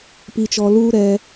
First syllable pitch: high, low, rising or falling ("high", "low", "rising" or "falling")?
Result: low